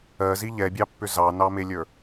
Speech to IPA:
ɜ z i ʎ ɛ bʲ ɑ pː ʏ z ɑ n ɑ m e lʲ ə˞

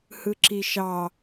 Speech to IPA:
h ɯ ǁ i ʃ ɑ

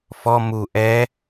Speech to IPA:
f ɔ m u ʔ ɛ

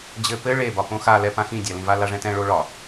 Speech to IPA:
d͡ʑ ɘ p ɘ ɭ e b ɒ p õ x a l ɛ p ã x ĩ dʲ a l ĩ v a l a ʐ ɛ̃ t ɛ̃ ɭ o ɭ ɒ

